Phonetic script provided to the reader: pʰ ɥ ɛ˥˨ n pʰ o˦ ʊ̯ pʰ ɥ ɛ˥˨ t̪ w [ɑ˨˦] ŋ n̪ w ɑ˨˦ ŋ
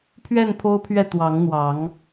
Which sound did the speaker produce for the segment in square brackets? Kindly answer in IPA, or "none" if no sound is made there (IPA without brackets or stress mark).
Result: ɑ˨˦